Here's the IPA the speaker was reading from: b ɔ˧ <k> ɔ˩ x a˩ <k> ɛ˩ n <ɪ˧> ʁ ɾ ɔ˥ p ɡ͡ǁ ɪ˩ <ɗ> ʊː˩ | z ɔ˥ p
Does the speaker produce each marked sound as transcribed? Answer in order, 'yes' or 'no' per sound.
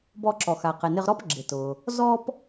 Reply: no, no, yes, no

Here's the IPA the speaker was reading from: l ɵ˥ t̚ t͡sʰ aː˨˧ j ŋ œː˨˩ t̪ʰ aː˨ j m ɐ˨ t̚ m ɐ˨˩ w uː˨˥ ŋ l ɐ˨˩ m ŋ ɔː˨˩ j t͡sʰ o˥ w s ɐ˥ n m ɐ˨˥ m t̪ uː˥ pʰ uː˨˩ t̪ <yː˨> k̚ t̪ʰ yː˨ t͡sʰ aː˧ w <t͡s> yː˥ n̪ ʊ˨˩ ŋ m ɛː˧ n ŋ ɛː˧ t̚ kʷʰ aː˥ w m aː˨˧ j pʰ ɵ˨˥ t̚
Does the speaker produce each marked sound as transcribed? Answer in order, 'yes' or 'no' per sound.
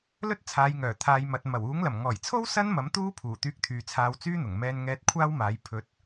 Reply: no, yes

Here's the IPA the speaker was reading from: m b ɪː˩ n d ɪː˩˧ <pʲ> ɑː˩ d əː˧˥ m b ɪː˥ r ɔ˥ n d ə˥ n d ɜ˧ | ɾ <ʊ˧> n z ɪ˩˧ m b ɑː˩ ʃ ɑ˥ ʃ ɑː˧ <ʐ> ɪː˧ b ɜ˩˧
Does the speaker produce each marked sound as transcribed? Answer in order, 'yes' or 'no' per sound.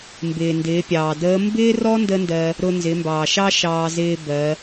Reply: yes, yes, no

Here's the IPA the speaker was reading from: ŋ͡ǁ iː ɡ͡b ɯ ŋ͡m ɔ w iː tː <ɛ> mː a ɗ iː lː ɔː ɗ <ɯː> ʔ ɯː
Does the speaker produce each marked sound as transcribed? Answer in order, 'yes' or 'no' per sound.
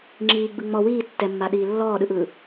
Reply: yes, no

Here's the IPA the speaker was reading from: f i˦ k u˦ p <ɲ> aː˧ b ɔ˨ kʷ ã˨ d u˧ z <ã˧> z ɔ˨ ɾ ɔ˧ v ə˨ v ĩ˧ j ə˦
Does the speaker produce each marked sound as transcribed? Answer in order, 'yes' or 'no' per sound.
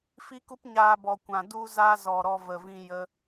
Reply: yes, no

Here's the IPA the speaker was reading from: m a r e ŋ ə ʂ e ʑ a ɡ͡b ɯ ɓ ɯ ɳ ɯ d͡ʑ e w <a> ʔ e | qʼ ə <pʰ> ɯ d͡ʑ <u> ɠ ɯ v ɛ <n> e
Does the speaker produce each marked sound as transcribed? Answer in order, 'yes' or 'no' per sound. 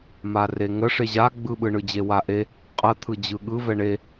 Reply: yes, no, no, no

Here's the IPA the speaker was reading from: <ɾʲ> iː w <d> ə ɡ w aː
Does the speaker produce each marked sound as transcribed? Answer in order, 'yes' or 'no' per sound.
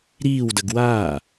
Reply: no, yes

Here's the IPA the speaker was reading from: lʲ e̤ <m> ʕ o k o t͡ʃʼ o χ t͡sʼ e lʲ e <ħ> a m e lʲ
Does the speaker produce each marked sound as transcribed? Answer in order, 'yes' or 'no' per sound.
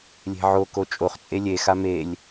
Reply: no, no

